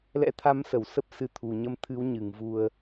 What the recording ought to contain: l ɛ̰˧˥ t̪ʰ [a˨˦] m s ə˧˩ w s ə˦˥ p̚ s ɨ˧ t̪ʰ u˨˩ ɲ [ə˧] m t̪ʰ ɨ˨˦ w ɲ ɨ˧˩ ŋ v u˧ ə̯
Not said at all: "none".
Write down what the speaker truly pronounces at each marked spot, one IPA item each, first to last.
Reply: a˨˦, ə˧

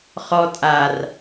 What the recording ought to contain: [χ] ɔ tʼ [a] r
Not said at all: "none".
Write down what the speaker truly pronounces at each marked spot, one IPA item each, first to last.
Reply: χ, a

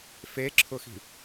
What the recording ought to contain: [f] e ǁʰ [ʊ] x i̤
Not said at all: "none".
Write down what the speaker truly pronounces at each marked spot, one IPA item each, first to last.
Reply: f, ʊ

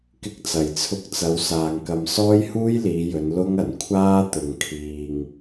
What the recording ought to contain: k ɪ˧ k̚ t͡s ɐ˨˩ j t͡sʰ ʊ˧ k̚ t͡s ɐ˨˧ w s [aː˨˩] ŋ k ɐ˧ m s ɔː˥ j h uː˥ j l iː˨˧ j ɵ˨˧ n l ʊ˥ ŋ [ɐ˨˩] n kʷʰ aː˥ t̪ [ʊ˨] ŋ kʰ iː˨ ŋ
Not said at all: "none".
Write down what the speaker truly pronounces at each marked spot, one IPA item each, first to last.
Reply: aː˧, ɐ˨˩, ʊ˨

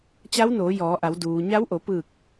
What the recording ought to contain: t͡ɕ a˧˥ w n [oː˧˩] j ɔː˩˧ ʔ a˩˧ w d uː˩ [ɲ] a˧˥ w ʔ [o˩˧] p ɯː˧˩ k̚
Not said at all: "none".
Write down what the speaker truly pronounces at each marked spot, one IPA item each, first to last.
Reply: oː˩˧, ɲ, o˩˧

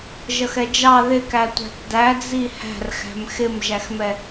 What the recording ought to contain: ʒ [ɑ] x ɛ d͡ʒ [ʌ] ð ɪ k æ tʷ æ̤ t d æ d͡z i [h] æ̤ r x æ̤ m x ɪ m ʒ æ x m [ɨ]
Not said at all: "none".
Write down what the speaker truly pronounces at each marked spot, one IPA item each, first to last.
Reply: ʌ, ɑ, h, ɛ

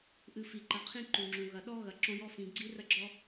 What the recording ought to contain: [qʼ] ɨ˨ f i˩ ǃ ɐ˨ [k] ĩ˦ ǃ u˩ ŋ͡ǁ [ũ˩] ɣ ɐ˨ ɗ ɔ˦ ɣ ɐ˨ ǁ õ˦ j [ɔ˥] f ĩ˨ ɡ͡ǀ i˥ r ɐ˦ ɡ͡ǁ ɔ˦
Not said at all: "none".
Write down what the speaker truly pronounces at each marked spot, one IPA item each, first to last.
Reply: ʔ, qʰ, ũ˩, ɔ˥

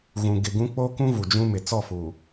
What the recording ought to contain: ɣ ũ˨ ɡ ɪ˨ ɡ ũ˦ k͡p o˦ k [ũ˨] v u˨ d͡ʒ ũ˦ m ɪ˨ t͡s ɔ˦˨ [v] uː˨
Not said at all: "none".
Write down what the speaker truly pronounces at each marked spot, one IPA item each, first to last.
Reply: ũ˦, f

